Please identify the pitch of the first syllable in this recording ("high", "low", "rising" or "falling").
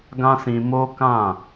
high